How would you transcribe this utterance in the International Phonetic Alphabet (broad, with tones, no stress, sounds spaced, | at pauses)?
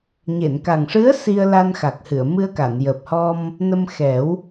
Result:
ɲ e˨˩˨ n k a˨˩ ŋ ʂ ɨ˧˥ ə̯ s i˧ ə̯ l a˧ n x a˨˩ k̚ h ɨ˨˩˨ ə̯ m ɨ˧ ə̯ k a˨˩˨ n j əː˨˩ p̚ h ɔ˧ m | n ə˧ m x ɛ˨˩˦ w